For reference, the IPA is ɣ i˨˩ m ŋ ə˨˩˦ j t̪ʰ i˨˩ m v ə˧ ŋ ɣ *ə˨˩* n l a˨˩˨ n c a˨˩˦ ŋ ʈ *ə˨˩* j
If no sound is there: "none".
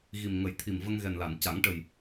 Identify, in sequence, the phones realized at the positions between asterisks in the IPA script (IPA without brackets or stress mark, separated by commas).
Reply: ɛ˨˩, ə˨˩